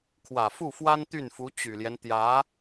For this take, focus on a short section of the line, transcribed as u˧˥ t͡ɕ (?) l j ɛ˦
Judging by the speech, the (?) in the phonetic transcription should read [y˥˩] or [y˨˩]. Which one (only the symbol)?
y˨˩